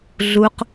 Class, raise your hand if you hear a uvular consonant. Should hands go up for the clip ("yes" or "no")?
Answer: yes